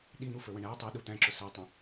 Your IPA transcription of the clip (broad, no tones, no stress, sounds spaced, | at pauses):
ɗ i n̪ u f ə˞ w ə̃ ɳ æ tˤ i ɗ u t̪ æ̃ ǁ ʊ s æ tˤ ə̃